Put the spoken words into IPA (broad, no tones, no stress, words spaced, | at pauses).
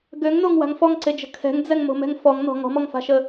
ɡøŋnoŋwa̤ŋ fɔŋǀed͡ʒə̤ kʰɛ̤ŋd͡zɛŋmo̤mɛ̤ŋ fɔŋnɔ̤ ŋɔ̤mɔŋfa̤ʃə